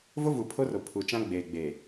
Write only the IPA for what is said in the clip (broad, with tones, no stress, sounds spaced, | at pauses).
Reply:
v o˦ v u˨ pʰ o˦ r o˨ pʰ u˨ t͡ʃ ã˦ ɡ͡b eː˨ ɡ͡b eː˨